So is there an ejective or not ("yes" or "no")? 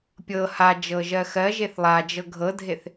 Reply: no